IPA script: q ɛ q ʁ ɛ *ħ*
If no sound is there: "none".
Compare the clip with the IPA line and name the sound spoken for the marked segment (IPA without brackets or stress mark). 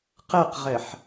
ħ